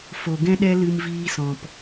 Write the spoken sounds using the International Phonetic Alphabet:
f o˨ ɡ ɛ̃˦ ɗ ɛ˦ l ɨ˧ m v iː˧ s ɔ̃˨ p

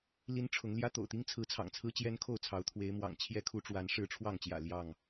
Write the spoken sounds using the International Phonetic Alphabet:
l i˦ n ʈ͡ʂʰ ʊ˨˦ ŋ l j ä˦ t̪ o̰˨˩ ʊ̯ t̪ i˦ ŋ t͡sʰ ɹ̩˨˦ t͡sʰ ɑ̰˨˩ ŋ t͡sʰ ɹ̩˦ t͡ɕ j ɛ˦ n kʰ o˥˨ ʊ̯ t͡sʰ ɑ˨˦ ʊ̯ t̪ʰ w e˨˦ ɪ̯ m w ɑ̰˨˩ ŋ t͡ɕʰ j ɛ˦ kʰ u˨˦ ʈ͡ʂ w a˨˦ n ʂ ɻ̩˥˨ ʈ͡ʂʰ w ɑ˥˨ ŋ t͡ɕ j ä̰˨˩ l j ɑ˥˨ ŋ

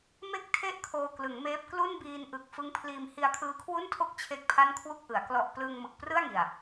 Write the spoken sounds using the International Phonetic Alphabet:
m e˦˥ k̚ tʰ e˦˥ ʔ kʰ oː˧ k l ɯ˩˦ ŋ m eː˦˥ p̚ k l u˥˩ n b iː˧ n ʔ ɯ˨˩ k̚ f ɯ˦˥ ŋ pʰ l iː˧ m h i˧ a̯ kʰ ɯː˦˥ kʰ w u˥˩ n tʰ o˥˩ k̚ t͡ɕʰ e˥˩ k̚ pʰ a˥˩ n kʰ w u˥˩ k̚ ʔ ɯ˩˦ a̯ k l ɔ˨˩ ʔ p l ɯː˧ ŋ m ɯ˨˩ k̚ p r ɯ˥˩ a̯ ŋ i˨˩ a̯

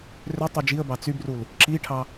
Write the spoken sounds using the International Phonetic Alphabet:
r ø tˤ y d͡ʒ i ə̯ b ɑ t͡s y b r u l | ǁ i ʈʰ ɑ

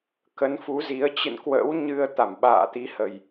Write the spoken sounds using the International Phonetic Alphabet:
k ə˨˦ n f u˨˦ z i˨˦ ə̯ t͡ɕ ɨ̰˧˨ n k w ə̰ː˧˥ w ɲ ɨ˧ ə̯ t̪ a˧˩ m ɓ a̰ː˧˨ t̪ i˨˦ h ə˨˩ j

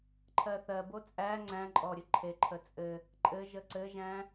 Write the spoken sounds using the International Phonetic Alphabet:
ǃʰ ɜ θ ɜ b o t͡sʼ æ ŋ͡ǀ æ̃ ǃʼ ɔ ɾʲ ɘ ǃʰ e ǃʰ ə t͡sʼ ɘ | ǃʼ ɘ ʒ ə ǀ ɘ ʒ æ̃

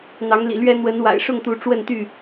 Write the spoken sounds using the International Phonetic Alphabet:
n̪ ɑ˨˦ ŋ l ḭ˨˩ l ɥ ɛ˦ n̪ w ə˨˦ n w a̰˨˩ ɪ̯ ʂ ʊ˥˨ ŋ t̪ u˨˦ ʈ͡ʂ w ə˥˨ n t̪ y˥˨

